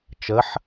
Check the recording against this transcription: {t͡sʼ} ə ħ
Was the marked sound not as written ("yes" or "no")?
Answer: yes